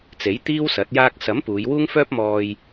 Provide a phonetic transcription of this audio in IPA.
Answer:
t͡s e˨˥ j t̪ iː˥ w s ɐ˨˥ t̚ j aː˧ k̚ s ɐ˨˥ m p uː˨˧ j w uː˥ ŋ f œː˥ p̚ m ɔː˨ j

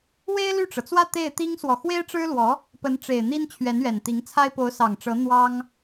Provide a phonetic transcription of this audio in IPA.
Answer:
w e˥ ɪ̯ l y˥˩ ʈ͡ʂ ɤ˩ t͡s w ä˥˧ t̪ e˥˩ ɪ̯ t̪ i˥ ŋ s w ɔ˨ x w e˥ ɪ̯ ʈ͡ʂ ɻ̩˥ l w ɔ˧˥ | p ə˧˥ n ʈ͡ʂ e˨˩ ɪ̯ n̪ i˥ n t͡ɕʰ ɥ ɛ˧˥ n ɥ ɛ˨˩ n t̪ i˧˥ ŋ t͡sʰ a˥ ɪ̯ p o˧˥ ʊ̯ s ɑ˨˩ ŋ ʈ͡ʂ ɤ˧˥ n̪ w ɑ˥ ŋ

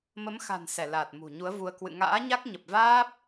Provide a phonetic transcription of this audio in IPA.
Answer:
m ə˨˦ m x a̤˨˩ n s ɛ˧˩ l aː˨˩ t̚ m ṳ˨˩ ɲ u˨˦ ə̯ v u˧ ə̯ k w ɨ̰˧˨ ŋ a̰ː˧˥ ɲ a˦˥ k̚ ɲ ə˨˩ p̚ v aː˦˥ p̚

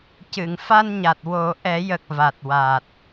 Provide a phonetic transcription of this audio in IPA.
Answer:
c ɨ˨˩˨ ŋ f a˧ n ɲ a˨˩ t̚ w o˨˩˦ ʔ ɛ˨˩˦ j ə˨˩ k̚ v a˨˩ t̚ w a˨˩ t̚

